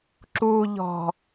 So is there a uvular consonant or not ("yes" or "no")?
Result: no